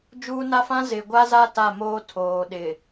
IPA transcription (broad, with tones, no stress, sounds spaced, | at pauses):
d͡ʒ uː˦ n a˦ f ã˦ z ɪ˨ ɡʷ a˦ z a˦ t a˦˨ m oː˦ tʰ oː˨ ɗ ɪ˨